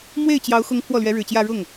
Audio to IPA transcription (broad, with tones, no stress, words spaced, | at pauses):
mwe˥˩ɪ̯t͡ɕjɑ˧˥ʊ̯ xʊ˧˥ŋ pʰwɔ˥˩lɥɛ˧˥ɻɻ̩˨˩t͡ɕjä˥˧ ɻʊ˥˩ŋ